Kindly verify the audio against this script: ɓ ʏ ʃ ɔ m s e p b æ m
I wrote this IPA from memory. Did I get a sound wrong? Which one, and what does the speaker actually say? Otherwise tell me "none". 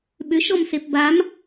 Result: æ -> a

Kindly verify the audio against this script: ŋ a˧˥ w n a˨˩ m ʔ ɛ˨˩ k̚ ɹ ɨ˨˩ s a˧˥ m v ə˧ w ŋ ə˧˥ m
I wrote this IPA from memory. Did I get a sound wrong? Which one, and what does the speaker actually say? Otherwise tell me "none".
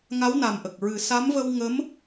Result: ɛ˨˩ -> ə˨˩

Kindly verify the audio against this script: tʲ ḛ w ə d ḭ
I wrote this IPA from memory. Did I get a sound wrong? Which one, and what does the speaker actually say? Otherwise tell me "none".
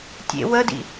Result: none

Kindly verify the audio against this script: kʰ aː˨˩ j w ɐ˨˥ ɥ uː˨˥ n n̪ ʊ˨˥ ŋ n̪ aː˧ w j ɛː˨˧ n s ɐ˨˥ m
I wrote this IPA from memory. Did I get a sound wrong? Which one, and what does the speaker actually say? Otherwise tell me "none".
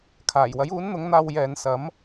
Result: ɥ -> j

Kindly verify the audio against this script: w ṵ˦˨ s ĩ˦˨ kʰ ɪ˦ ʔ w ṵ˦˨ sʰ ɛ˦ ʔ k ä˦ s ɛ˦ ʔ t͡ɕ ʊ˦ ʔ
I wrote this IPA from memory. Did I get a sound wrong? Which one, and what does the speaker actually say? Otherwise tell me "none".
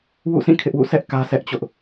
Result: none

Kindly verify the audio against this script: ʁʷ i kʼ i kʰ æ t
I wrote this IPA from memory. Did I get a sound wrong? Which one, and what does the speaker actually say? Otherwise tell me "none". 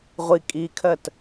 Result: æ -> ɜ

